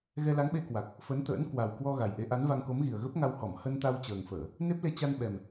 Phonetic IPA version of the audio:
ɣ ɛ˧ l a˨˦ ŋ ɓ e˧ k w a˨˩ k̚ | f ə˨˦ n t̪ ə̰ː˧˥ n k w a˨˩ w k w ɔ˧ ɣ a˨˩ j ʔ e˨˦ ʔ a˨˦ n v a˧ ŋ k o˨˦ m ɣ i˨˩ ə̯ ɣ ə˦˥ p̚ ŋ a˧ w h ɔ˧˩ m h ə˧ n t̪ a˧ w t͡ɕ əː˨˩ ŋ f əː˧˩˨ | n e˦˥ p̚ l e˧ t͡ɕ a˧ n ɓ ɛ˨˩ m

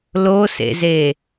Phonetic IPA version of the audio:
l o s ḛ z e

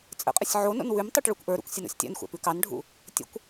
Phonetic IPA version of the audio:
t͡sʼ ə̰ qʼ ə sʲ ʕ o n o̰ n w ʉ m tˤ o ʈ ɭ u kʷ ʔ ə˞ ɾ ṵ kʷ sʲ ə n o̰ sʲ tʲ a̰ n xʷ æ̰ p ʉ k ɑ n ɖʱ ṵ | tʲ ə̰ kʷ

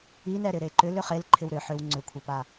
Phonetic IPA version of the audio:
i n ɛ ɾ ɪ ɾ e ǃ ʏ l ʏ χ e l ǃʰ ɪ w ɾ ʏ ħ ʏ w ŋ͡ǀ ʏ kʷʰ ɛ p a

